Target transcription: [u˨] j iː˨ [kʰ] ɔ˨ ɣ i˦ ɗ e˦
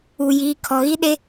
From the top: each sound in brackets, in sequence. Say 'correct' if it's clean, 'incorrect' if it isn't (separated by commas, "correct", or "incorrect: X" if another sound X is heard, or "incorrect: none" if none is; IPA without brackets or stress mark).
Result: correct, correct